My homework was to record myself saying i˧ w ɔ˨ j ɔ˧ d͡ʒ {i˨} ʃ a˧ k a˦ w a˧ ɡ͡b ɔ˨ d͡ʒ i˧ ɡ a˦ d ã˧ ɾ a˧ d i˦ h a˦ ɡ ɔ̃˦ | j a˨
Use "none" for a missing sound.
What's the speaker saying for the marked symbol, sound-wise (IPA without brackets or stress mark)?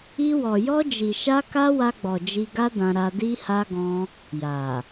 i˨